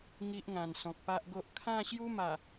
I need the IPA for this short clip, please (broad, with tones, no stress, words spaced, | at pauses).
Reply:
ŋi˦ʔŋã˨˩n sɔ̃˨k̚pa˦ʔɡo˦ʔ kʰã˥˧ɕju˦ma˨˩